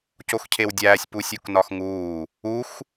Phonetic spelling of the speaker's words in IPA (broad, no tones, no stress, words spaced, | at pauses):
coxcʰewdʲæːsʲ pusʲuknɒxŋuː | ux